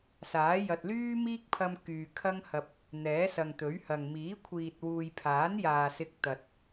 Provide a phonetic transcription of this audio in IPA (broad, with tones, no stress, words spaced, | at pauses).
saː˨˥ jɐ˨t̚lyː˥miː˥k̚pʰɐ˧m kyː˨kʰɐ˥ŋhɐ˧p̚ | n̪ɛː˨˥sɐ˨ŋt̪ɵ˨˥ɥhɐ˨ŋ miː˨˥kʷʰiː˨t̚ wuː˨jpʰaː˨˥njaː˨ sɪ˧k̚t̪ɐ˨t̚